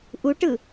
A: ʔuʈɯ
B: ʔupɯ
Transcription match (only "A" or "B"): A